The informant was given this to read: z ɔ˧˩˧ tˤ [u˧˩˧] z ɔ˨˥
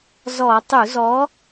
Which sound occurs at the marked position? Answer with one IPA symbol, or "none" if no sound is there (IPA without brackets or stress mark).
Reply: u˧˩˧